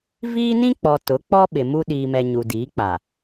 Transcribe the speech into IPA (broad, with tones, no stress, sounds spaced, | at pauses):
v iː˦ n ĩ˦ k͡p ɔ˨ t ʊ˨˦ k͡p ɔ˦ ɓ ɪ˨ m u˦ ɗ iː˨ m ɛ˨ ɲ u˨ d iː˨˦ k͡p a˨